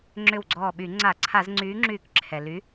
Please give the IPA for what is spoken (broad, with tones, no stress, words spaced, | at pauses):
ŋ͡ǁʏ˧˩wɡ͡ǀɔː˧˩ɓy˧˩˧ ŋ͡ǀa˧˩˧ ǀʰa˧˩˧z ŋ͡ǀyː˨˥ŋ͡ǁyː˧˩k ǁʰɛ˩ly˨˥